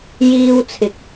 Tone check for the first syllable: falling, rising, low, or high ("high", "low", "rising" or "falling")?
high